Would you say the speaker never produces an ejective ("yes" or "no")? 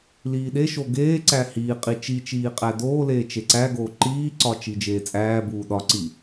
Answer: no